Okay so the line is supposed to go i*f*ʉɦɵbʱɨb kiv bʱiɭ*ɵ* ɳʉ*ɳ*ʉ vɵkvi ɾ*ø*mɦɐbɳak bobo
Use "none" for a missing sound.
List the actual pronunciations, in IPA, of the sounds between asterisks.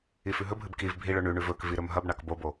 f, ɵ, ɳ, ɵ

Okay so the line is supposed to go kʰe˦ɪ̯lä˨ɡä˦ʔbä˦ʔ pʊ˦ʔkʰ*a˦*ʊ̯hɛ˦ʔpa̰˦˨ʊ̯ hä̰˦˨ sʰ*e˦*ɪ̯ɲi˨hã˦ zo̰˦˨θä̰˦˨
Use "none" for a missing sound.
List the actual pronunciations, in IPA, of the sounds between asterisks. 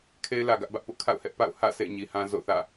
a̰˦˨, ḛ˦˨

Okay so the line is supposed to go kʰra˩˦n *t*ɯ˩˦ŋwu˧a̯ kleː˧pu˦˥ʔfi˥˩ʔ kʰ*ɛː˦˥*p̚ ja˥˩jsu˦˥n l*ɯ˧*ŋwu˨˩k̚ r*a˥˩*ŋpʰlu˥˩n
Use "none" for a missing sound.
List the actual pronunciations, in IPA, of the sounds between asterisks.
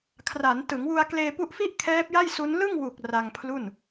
t, ɛː˦˥, ɯ˥˩, a˧

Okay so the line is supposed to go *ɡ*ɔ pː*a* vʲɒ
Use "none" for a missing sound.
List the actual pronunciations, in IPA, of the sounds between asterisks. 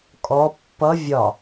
kʼ, ʌ

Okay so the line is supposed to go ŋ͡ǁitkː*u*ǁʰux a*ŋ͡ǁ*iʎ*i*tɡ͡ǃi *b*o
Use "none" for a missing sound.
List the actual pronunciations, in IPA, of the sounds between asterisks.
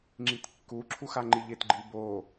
u, ŋ͡ǃ, ɪ, b

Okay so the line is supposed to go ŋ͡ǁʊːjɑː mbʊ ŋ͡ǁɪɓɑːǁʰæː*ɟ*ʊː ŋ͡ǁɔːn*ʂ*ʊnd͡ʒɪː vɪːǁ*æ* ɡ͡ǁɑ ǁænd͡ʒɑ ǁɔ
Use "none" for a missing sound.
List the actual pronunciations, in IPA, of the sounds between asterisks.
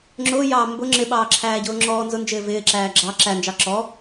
ɟ, z, æː

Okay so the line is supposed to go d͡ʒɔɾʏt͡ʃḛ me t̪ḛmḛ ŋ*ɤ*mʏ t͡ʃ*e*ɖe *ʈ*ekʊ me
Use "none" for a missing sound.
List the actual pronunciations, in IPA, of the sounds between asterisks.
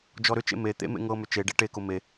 ɤ, e, ʈ

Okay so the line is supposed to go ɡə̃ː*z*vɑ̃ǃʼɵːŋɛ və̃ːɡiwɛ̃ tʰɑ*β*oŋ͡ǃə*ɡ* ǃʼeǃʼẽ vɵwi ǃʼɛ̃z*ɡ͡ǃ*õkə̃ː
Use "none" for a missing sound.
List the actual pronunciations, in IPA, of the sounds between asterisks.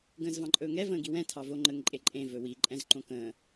z, v, ŋ, ǃ

